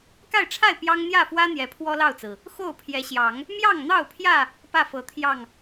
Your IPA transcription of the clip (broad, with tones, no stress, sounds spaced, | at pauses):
k a˥˨ ɪ̯ ʈ͡ʂʰ a˥˨ ɪ̯ p j ɑ˦ ŋ n̪ j ä˥˨ f w ä˦ n̪ j ɛ˨˦ pʰ w ɔ˦ l ɑ˥˨ ʊ̯ t͡s ɹ̩˩ | x o˥˨ ʊ̯ pʰ j ɛ˨˦ ɕ j ɑ˨˦ ŋ | m j ɑ˥˨ ŋ n̪ ɑ˥˨ ʊ̯ pʰ j ä˥˨ | p ä˥˨ f ɤ˨˩ t̪ʰ j ɑ˥˨ ŋ